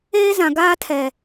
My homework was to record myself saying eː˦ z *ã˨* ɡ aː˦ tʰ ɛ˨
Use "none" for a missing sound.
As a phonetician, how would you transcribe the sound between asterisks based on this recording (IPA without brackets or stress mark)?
ã˨